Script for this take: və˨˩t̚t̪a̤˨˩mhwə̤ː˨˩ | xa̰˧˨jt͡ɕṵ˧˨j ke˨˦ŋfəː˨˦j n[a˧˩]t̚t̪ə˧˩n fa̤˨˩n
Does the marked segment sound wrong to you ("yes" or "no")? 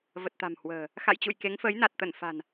yes